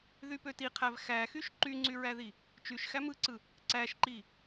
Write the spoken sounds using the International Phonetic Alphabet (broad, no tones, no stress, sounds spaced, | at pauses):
ð y p ø t i qʰ æ v x æ x y ʃ ǃ y ŋ͡ǀ y ɹ æ ð i | t͡ʃ y ʃ x æ m ɯ ǀ ɯ | ǀ æ ʃ ǃ i